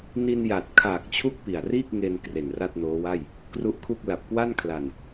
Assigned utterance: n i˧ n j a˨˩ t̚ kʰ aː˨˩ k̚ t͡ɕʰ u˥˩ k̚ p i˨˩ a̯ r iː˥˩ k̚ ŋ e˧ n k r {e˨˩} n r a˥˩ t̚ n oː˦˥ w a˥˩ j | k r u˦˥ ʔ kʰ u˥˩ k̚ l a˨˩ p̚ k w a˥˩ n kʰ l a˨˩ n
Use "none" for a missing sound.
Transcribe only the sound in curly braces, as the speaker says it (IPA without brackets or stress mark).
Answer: e˨˩